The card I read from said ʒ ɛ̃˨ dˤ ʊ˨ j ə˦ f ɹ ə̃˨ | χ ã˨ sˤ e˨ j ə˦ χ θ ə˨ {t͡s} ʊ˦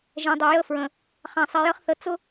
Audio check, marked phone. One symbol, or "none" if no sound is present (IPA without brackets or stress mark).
t͡s